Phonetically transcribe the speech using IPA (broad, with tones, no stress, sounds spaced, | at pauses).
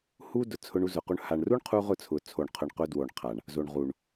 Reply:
h u˦ d ʊ˨ t͡sʰ ʊ˧ ɳ u˧ z ʊ˨ q u˧ ɳ h a˨ ɳ r u˦ ɳ qʰ u˧ ʁ ʊ˦˨ t͡sʰ ʊ˨ t͡sʰ o˨ ɳ qʰ ʊ˨ ɳ q ʊ˧ d w o˨ ɳ qʰ a˨ ɳ | z o˨ ɳ ʁ u˨ ɳ